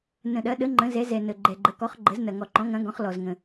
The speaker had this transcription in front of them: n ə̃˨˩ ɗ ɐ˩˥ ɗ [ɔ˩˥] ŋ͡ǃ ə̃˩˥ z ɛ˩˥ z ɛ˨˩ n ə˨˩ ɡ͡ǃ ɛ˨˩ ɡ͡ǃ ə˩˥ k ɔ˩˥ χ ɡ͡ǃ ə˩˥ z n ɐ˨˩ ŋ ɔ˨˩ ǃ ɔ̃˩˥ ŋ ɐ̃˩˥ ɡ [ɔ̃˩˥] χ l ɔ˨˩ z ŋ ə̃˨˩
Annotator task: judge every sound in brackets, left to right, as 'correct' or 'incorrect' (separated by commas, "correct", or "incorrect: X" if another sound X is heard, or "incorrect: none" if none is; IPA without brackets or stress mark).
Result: incorrect: ə˩˥, correct